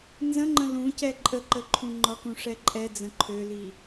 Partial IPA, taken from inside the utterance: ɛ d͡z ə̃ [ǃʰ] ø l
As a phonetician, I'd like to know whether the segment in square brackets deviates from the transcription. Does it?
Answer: no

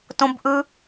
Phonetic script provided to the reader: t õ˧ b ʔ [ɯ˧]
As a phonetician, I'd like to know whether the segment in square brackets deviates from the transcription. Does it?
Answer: no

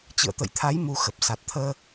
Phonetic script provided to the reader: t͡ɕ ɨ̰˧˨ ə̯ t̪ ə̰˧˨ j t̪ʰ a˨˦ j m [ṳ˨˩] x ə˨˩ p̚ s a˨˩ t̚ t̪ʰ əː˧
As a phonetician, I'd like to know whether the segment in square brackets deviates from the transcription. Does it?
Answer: yes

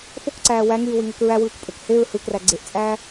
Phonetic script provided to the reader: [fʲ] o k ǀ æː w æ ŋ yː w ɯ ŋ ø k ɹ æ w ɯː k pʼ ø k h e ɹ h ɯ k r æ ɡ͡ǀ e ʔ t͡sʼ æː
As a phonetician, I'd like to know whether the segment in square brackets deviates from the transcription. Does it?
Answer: yes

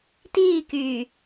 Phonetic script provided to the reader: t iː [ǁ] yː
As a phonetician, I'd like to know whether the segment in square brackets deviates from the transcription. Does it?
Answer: yes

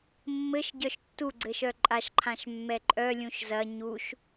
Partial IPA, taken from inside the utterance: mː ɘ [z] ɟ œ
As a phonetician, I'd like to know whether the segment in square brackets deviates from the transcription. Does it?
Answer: yes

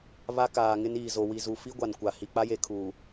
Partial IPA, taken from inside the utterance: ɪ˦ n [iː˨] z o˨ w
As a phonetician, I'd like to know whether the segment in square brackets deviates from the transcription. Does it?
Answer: no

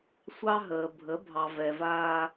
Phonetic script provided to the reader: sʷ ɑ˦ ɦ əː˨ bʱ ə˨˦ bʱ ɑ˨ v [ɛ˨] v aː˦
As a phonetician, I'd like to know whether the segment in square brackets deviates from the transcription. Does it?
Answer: no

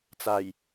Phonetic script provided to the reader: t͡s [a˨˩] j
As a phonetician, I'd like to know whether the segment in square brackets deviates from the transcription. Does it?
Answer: no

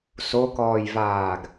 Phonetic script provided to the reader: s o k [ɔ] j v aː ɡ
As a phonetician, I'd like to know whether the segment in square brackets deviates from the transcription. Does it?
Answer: yes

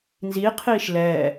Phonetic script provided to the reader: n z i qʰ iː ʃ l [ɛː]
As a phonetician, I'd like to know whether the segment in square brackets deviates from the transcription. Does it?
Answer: no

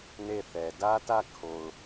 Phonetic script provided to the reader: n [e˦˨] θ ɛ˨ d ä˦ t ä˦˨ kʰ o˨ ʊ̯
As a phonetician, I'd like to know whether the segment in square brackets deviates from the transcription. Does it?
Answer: no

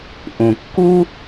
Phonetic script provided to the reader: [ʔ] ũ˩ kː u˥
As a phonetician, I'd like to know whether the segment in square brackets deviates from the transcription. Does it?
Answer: no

